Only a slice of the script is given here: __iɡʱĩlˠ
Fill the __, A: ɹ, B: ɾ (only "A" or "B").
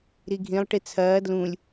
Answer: B